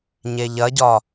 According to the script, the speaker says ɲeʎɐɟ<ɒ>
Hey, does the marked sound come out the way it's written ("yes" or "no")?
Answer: yes